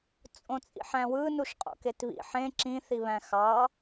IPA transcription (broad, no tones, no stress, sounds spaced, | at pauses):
t͡sʼ õ t͡sʼ ḭ ħ æ̃ w ɯ n u ʃ qʼ o̰ k e t β ḭ ħ ẽ ǁ ĩ θ i β æ̃ x ɑ